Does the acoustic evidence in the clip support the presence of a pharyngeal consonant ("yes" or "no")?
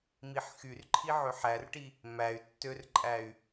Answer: yes